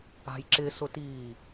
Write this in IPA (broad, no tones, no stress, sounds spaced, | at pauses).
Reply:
a̤ j ǁ ɪ s ʊ t iː